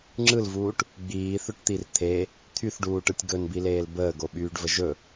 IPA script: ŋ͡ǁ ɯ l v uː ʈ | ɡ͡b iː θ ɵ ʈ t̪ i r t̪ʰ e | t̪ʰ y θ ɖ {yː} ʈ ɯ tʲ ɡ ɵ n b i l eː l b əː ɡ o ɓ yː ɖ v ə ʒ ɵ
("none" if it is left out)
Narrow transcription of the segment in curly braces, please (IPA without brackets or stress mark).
uː